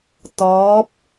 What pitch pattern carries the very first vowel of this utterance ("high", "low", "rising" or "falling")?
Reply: rising